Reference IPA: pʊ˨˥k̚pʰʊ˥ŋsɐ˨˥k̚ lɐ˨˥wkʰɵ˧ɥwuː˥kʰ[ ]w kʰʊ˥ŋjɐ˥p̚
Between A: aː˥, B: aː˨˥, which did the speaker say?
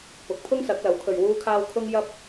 A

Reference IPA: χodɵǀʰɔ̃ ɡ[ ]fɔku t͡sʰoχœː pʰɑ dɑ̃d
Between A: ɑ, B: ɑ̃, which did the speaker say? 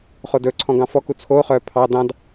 B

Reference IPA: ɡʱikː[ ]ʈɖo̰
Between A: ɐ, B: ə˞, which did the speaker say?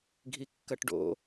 A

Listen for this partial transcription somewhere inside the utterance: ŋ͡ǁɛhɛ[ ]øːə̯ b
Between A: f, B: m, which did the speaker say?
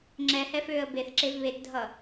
A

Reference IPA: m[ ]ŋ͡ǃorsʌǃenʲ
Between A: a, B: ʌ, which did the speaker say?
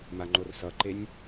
A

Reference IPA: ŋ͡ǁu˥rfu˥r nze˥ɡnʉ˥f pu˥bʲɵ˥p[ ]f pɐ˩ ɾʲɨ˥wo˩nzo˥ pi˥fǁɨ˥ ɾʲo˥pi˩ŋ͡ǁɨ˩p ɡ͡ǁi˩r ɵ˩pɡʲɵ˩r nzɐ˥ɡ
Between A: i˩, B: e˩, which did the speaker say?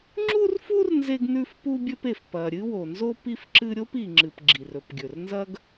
B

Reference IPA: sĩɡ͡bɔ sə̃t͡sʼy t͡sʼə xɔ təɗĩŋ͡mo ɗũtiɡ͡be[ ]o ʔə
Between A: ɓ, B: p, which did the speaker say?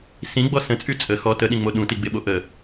A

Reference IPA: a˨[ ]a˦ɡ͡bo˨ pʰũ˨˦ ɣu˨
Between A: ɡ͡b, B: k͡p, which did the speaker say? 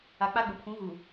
B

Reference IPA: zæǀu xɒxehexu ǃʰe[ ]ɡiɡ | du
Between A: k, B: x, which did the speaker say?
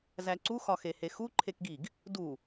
A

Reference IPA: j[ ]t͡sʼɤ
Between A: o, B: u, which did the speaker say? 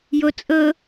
A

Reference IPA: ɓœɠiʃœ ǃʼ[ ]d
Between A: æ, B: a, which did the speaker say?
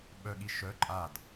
B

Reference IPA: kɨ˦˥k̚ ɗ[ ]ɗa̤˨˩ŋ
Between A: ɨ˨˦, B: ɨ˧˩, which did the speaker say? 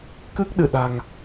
B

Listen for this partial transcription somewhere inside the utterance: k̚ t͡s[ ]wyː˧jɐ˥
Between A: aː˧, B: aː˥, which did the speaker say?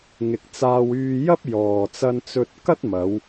A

